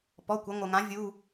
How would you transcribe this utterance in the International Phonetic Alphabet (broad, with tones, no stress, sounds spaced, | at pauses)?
p ɔ˩˧˩ kʷ ɐ˩˧ ŋʷ ɘ˩ ŋ ã˩˧ vʲ u˩˧˩